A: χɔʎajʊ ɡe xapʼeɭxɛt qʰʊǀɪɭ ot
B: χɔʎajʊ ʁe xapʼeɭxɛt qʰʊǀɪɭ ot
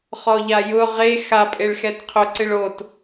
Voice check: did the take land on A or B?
B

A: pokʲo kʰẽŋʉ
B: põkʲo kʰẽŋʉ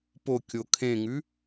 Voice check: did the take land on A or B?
A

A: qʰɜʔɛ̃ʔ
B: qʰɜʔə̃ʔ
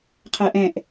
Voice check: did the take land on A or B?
A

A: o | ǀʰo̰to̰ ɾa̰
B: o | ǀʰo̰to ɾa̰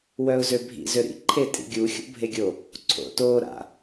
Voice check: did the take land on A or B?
B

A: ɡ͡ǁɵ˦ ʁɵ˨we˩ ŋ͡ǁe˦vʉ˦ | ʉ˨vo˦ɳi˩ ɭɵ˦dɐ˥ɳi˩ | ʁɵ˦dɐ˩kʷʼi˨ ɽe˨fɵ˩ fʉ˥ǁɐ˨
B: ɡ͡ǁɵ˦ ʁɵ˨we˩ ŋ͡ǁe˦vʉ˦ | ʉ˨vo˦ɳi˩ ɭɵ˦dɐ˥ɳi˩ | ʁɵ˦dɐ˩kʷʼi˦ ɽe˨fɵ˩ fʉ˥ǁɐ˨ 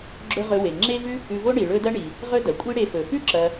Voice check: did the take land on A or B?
B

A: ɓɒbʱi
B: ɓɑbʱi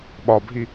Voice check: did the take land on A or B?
A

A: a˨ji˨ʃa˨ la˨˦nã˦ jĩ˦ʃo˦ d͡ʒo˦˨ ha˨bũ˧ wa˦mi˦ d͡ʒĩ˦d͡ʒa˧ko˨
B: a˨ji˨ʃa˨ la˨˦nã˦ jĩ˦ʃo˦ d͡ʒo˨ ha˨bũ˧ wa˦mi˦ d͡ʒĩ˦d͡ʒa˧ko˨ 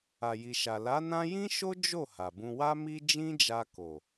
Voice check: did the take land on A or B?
A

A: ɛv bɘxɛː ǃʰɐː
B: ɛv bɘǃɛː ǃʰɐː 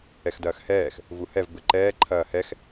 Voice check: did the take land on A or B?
B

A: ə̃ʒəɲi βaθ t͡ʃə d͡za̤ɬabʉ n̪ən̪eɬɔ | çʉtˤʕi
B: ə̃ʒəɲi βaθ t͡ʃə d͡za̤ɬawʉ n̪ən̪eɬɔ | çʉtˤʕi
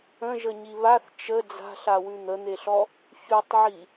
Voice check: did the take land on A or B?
B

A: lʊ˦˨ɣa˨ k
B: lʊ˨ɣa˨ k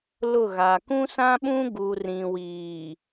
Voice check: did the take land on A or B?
A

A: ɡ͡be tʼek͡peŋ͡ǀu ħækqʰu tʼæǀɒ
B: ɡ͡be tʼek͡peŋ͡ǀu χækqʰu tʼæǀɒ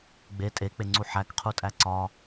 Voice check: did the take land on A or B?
A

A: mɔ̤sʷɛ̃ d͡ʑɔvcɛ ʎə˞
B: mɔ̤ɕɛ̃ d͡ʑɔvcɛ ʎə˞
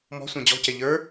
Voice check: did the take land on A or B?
A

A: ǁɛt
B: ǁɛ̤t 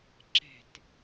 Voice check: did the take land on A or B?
B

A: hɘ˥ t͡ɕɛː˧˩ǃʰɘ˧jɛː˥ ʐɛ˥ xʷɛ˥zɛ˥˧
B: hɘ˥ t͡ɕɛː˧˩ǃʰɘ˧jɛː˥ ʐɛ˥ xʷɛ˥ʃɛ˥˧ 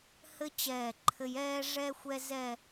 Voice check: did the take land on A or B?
A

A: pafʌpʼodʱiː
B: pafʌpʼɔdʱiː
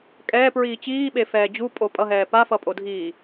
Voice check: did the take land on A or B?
A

